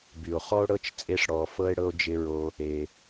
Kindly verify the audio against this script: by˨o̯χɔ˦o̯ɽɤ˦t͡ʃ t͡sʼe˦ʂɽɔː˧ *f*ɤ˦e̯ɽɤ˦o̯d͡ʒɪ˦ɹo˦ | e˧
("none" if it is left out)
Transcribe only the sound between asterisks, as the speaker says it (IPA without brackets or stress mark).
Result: f